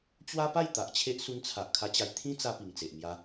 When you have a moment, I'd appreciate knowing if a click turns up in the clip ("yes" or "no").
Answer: no